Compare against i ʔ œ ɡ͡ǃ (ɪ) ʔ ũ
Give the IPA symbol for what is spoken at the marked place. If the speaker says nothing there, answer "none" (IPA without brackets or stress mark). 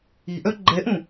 ɛ